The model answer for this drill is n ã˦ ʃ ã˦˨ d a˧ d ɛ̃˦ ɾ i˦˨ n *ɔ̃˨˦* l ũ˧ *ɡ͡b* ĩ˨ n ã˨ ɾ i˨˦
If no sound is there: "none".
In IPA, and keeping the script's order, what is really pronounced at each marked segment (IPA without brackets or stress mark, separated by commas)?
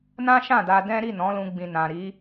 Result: ɔ̃˨˦, ɡ͡b